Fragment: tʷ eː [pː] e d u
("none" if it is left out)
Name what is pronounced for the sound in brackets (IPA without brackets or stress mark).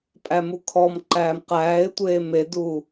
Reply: m